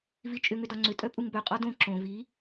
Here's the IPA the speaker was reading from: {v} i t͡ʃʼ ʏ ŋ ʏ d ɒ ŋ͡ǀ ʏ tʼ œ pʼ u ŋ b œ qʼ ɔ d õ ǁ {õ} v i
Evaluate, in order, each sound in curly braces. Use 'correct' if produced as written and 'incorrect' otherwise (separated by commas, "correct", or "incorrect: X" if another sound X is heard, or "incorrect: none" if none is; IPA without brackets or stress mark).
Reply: correct, correct